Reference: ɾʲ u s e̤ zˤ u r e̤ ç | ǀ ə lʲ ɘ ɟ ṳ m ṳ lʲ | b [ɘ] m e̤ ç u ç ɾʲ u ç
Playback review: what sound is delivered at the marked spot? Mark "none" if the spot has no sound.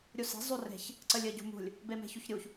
e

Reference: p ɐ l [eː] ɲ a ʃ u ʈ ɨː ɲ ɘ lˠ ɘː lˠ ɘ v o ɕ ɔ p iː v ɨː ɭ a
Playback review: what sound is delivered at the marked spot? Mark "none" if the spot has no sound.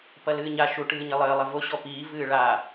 ɨː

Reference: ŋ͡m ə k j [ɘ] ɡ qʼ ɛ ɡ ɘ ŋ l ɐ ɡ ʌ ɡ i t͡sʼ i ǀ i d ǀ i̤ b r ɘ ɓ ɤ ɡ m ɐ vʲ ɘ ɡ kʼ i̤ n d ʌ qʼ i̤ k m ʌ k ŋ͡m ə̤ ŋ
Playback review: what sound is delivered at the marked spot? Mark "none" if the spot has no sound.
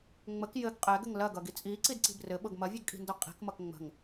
ɘ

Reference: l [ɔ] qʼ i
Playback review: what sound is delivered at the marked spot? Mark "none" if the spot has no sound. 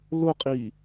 ʊ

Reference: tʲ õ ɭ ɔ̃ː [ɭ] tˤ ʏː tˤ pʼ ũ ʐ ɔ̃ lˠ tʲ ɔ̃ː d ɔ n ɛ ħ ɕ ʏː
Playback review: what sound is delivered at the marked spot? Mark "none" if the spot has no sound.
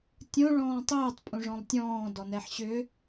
none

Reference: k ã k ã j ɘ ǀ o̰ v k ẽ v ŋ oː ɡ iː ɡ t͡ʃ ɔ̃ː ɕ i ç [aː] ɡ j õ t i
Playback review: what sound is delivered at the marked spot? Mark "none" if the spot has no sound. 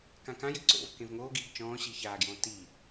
aː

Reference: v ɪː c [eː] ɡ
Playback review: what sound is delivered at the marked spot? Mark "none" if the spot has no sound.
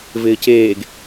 eː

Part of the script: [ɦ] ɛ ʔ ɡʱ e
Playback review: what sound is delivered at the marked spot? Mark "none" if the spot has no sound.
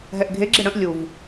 ɦ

